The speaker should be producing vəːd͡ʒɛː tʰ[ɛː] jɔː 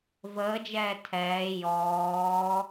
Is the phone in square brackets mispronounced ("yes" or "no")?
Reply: no